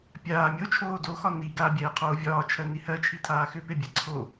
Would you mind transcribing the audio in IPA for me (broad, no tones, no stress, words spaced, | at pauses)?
pʲaː mʲot͡ʃʰoː doxɒ ni ɡabʲɛːqʰoː vʲɒːt͡ʃʰɜni hɜt͡ʃʰitʰaː xʏpebʲɛ ǀʰo